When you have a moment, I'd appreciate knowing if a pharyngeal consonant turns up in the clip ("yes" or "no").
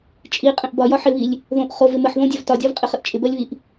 yes